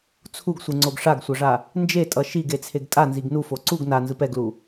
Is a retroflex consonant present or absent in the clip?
present